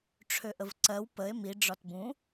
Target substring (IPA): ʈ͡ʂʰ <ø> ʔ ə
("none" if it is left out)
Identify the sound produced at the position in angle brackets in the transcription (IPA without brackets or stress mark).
ø